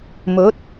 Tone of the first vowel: rising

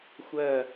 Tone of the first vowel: falling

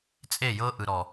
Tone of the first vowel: falling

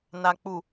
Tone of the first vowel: low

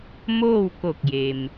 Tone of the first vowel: falling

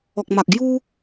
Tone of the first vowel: low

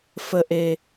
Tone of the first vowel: high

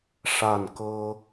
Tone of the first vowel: falling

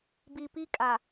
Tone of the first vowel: low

